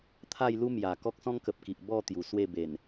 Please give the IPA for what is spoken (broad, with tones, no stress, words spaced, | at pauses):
t̪ʰa˥˧jlu˦mja˨˩ kɔ˦k̚sɔ̃˦ŋkə˨p̚ki˨ʔ bɔ˥˧ t̪ju˨˩ swe˥˧ be˨˩n